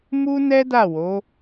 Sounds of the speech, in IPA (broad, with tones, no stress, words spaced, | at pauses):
mu˦nɛ˦ da˦˨wo˨˦